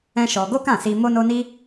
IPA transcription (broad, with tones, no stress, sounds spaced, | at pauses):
ɛ̃˦ ʃ ɔ˧ ɡ o˦ k ã˦˨ s i˧ m o˦ n o˦ n i˦